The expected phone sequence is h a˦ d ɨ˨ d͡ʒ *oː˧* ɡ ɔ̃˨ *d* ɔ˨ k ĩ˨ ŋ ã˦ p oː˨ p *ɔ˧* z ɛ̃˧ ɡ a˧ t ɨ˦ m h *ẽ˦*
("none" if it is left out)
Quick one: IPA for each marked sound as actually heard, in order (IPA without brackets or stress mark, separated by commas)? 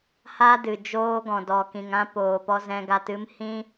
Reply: oː˧, d, ɔ˧, ĩ˦